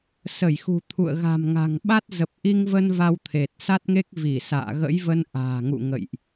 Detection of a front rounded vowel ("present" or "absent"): absent